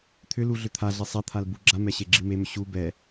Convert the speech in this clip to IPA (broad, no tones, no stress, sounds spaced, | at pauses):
t̪ʰ ʏ l u ɮ ʏ t̪ʰ a ɮ e sˤ ɛ t̪ʰ a l b u ɡ͡ǁ a m ɛ ɕ e ɡ͡ǁ i m e m ʏ ɕ u b ɛ